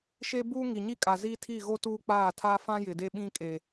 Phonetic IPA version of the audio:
ʃ e˦ b uː˦ ŋ i˨ ɲ i˦ kʼ a˨ z iː˦ tʰ i˦˨ ɣ o˦ t uː˦ k͡p aː˦˨ tʰ a˦ f ã˦ j ɪ˨ d e˦ ɓ ĩ˦ kʼ e˨

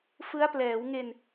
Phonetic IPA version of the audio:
f ɯ˦˥ a̯ p l ɛː˩˦ w ŋ e˧ n

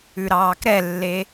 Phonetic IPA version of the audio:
ʉ ɾ ɑː k ɾ ɛ lː e

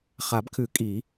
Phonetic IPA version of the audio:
χ a˨˩˦ b kʰ ʉ˨˩˦ kʼ i˨˩˦

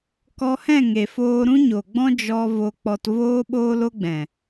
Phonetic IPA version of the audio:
k ɔ˧ h ɛ̃˦˨ ŋ e˨ f oː˧ ɾ ũ˦ ɲ o˨ ɡ͡b ɔ̃˦ d͡ʒ ɔ˧ v o˧ k͡p ɔ˧ t v oː˦ ɓ oː˦ l o˦ ɡ͡b ɛ̃˨

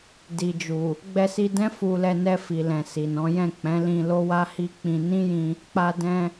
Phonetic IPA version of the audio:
d i˨ d͡ʒ u˨ | ɡ͡b ɛ˧ s i˧ d ɛ̃˦ f u˧ l ɛ˧ n ɛ˧ f i˨ l ɛ̃˨ s i˨ n ɔ̃˨˦ j ɛ̃˦˨ k͡p ɛ̃˨˦ l ĩ˧ l o˦ w a˦ h i˦ k͡p ĩ˧ n ĩ˦ j ĩ˧ | k͡p a˧ d ɛ̃˧

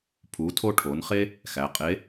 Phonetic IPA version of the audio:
pʰ u˩˧ tʰ o˧ ʈʰ o˩˧ n χ e˥ | x æ˩˧ qʼ e˧˥

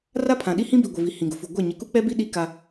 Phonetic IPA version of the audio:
r a˦ pʰ ã˨ ɗ i˦ h ĩ˦ b i˨ ɡʷ ɪ˨ v i˨ h ĩ˨ ɡ ʊ˨ f u˨ ɡʷ a˦˨ ɲ ɪ˨ k u˦ k͡p ɛ˦ b i˦ ɗ i˦ k a˦

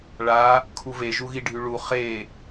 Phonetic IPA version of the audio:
ɭ a | kʰ u v e ʒ u ɣ i ɖʱ y ɭ u χ e

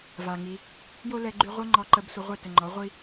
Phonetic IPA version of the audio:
v a˨ ŋ i˧ | j o˦ l ɛ˧ ɡ͡ǃ y˧ ʁʷ ə˦ ŋ͡ǃ ɔ˧ ǃ ə˧ b sʷ ə˧ ʁʷ ɛ˦˨ t ə˨ ŋ͡ǃ ɔ˨˦ ʁʷ i˦

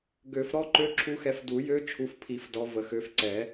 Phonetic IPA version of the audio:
ɡ ø˨˩˦ f ɾ ɔ˦˥ ǃ ø˦˥ ǁʰ u˦˥ x ɛ˨˦ f d u˨˩˦ j ø˦˥ t͡ʃʰ u˨˦ f pʰ i˨˩˦ f d ɔ˨˦ v ə˨˩˦ x ø˨˦ f ǀ ɛ˨˩˦

